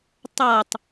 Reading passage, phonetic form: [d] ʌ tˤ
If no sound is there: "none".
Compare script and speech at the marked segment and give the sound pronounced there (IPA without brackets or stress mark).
tˤ